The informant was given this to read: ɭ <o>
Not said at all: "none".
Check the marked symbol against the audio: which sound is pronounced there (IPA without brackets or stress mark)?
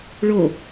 o